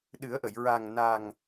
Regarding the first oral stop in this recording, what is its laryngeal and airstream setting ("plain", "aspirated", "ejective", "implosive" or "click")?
implosive